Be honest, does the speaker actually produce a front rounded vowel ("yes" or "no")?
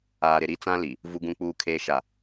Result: no